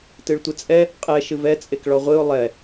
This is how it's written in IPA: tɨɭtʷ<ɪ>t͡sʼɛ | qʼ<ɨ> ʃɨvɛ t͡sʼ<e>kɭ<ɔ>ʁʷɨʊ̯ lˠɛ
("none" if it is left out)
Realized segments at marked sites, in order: ɨ, ɛ, e, ɔ

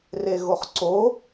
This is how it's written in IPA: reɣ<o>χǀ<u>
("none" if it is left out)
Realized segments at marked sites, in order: o, o

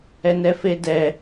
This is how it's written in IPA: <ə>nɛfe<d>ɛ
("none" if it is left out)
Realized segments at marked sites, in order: ɛ, d

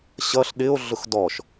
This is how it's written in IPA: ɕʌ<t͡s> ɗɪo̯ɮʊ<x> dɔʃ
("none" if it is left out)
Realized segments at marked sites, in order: ɬ, x

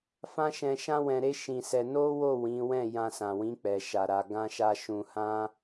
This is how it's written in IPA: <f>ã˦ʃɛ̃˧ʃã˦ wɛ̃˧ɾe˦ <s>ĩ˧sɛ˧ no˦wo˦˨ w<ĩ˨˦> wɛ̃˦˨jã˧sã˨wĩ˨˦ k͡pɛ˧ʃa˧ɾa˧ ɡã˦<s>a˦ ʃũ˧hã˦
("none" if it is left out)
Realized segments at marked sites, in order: f, ʃ, ĩ˨˦, ʃ

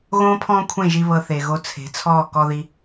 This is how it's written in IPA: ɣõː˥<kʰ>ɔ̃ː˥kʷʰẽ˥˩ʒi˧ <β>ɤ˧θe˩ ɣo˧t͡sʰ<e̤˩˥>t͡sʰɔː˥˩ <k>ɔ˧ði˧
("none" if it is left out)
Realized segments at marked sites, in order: pʰ, β, e̤˩˥, k

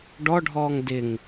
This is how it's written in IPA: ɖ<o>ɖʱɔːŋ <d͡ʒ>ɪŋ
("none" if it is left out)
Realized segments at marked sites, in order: ɔ, d

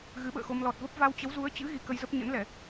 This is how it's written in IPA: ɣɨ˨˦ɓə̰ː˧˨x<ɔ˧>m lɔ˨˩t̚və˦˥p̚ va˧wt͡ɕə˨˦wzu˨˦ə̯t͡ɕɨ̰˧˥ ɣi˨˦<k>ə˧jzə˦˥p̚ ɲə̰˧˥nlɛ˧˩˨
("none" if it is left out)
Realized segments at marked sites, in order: o˧, k

